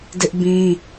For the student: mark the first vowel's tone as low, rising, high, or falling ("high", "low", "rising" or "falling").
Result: high